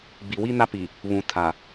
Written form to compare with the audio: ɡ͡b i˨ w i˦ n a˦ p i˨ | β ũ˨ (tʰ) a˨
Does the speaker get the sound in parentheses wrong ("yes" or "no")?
no